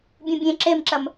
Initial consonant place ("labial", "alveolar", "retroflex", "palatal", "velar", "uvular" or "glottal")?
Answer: labial